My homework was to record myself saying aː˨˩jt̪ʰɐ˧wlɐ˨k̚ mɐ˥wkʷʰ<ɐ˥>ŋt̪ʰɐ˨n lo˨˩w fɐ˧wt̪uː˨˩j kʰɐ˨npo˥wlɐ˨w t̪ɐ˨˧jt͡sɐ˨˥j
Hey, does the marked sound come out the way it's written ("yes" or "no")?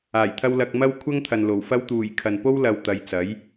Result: yes